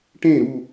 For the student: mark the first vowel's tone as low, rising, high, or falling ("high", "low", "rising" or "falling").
falling